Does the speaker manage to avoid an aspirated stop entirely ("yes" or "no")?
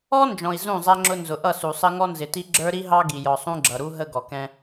yes